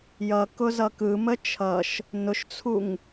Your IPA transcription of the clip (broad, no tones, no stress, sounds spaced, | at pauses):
j ʌ k ʊ z ʌ k ɯ m ə t͡ʃʰ ʌ ʃ | n ʊ ʃ t͡sʰ u ŋ